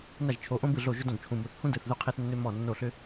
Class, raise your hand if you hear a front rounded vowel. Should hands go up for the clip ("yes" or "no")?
yes